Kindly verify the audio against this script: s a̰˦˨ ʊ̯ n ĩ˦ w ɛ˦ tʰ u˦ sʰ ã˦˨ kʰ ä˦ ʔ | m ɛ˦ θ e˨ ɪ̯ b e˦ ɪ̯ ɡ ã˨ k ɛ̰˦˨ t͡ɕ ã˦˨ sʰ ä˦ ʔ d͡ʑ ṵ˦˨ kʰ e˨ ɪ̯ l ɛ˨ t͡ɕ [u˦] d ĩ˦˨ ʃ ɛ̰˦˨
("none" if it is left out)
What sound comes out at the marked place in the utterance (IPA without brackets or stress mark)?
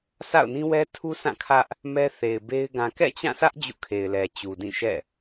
u˨